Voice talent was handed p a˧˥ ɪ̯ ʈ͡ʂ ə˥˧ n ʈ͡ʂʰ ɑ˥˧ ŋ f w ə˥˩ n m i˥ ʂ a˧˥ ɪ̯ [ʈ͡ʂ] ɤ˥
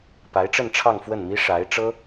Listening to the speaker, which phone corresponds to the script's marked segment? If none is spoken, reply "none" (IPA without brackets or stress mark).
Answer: ʈ͡ʂ